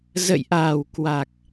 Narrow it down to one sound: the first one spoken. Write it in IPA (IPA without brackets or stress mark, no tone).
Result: z